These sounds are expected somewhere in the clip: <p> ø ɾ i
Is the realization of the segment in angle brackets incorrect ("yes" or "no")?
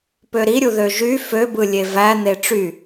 no